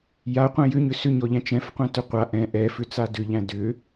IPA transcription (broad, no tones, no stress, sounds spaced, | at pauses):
j a qʷ ɛ̃ j ʏ ɲ ʏ s ʏ ɲ ɔ ʎ æ̃ t͡ʃ ɛ̃ f qʷ ɛ̃ t ʏ qʷ a ʔ ɛ̃ ʔ ɛ f ʏ t͡s a d ʏ ʎ æ̃ d ʏ